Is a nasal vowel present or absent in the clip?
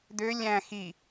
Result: present